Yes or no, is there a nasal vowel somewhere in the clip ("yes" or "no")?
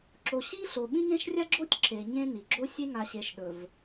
yes